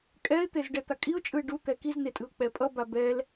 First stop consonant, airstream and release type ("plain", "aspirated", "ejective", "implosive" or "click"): ejective